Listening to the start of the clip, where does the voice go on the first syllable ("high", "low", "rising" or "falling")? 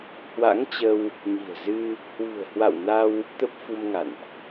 rising